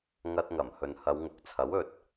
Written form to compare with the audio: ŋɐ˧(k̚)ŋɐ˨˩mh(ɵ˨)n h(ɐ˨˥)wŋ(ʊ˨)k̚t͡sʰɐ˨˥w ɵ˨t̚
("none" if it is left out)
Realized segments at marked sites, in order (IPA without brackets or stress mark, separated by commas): t̚, ɵ˨, ɐ˨˧, ʊ˨˥